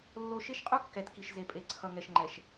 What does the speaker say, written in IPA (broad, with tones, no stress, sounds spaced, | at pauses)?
lː o˦ ʃ e˦ ʃ qʼ u˦ kː ɛ˨ t k i˨ ʃ z e˨ pʼ e˨ ǀʰ ʌ˨ ŋ ɛ˨ ʃ ŋ͡ǃ ɛ˨ ʃ